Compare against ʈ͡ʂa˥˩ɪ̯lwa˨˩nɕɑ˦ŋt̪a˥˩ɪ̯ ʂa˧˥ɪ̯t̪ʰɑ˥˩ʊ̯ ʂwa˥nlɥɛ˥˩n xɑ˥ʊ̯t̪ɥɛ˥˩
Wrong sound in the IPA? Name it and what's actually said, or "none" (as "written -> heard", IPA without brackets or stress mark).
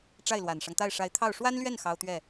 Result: ɕ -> ʂ